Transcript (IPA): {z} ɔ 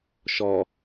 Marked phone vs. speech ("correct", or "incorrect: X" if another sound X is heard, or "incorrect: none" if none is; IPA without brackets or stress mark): incorrect: ʃ